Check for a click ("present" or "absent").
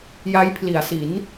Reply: absent